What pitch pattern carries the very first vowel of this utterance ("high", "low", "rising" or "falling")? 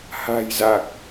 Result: low